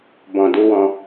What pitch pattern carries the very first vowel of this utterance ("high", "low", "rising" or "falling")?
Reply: low